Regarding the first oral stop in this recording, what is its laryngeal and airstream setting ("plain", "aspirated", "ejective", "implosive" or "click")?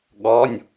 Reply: implosive